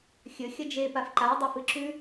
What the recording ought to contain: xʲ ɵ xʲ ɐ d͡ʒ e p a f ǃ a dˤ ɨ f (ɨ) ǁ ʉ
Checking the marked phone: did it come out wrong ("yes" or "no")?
no